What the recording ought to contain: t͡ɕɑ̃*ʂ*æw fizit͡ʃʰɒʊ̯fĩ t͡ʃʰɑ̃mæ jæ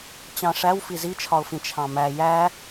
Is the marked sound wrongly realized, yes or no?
no